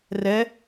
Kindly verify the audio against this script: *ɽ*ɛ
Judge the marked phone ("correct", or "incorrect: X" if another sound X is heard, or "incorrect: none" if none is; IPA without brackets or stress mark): incorrect: r